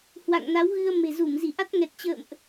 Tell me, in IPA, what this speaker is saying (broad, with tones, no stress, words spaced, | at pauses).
hwa̰˧˨ŋna˨˦wɣɨ˧ə̯ me̤˨˩zu˧˩m zi˧˩ ʔa˦˥t̚ŋɛ˨˩t̚t͡ɕə̰ː˧˨mʔ